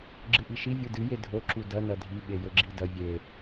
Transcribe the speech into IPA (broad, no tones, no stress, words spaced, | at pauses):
ɡ͡ǁɨʔiʃi vʲudɨ jedʱo ǁudɐ nɐdʱi ɓejɵɡ͡ǁidɐ vʲe